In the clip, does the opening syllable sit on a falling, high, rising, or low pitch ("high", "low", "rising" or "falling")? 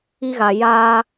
high